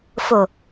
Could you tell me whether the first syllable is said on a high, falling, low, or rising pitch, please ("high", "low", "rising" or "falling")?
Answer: low